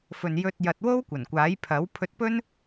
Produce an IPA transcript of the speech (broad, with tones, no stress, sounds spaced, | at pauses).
f ɵ˨ n j ɵ˧ t̚ j ɐ˨ t̚ w o˥ w kʷ ɐ˨˩ n kʷ aː˨˥ j pʰ ɐ˨˥ w pʰ ɵ˧ t̚ p ɵ˥ n